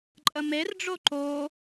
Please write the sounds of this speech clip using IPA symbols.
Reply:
ǃʼ ə m e r ɖ͡ʐ o ǃ o

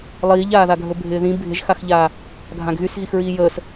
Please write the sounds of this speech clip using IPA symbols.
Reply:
lˠ iː ʎ aː ð a ɡʱ ɵ bʱ ɪː ð ĩ bʱ ɪ ʒ x a x ʎ aː | ɡʱ ã ɡ ɣ y s ɣ i x ɹ iː j əː s

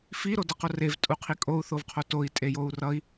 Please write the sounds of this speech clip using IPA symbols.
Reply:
f i ɾ o d ʌ q o r e v tʼ u qʰ i kʼ o u̯ θ o v qʰ o t o i̯ tʼ e j o u̯ r ʌ i̯

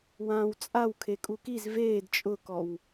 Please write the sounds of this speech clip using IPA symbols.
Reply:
w ãː w t͡sʼ a w kʰ e kʼ u k i z v eː d t͡ʃʼ ʊ k ɔ w

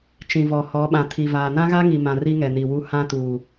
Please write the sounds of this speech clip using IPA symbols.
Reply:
t͡ʃ ĩ˨ v ɔ˨ h ɔ˨˦ ɓ ã˨ tʰ i˨ v aː˨ n ã˦ ɣ a˦ ŋ i˨ m ã˨ r i˦ ŋ ɛ˨ n i˨ w u˦ h ã˦ t uː˨

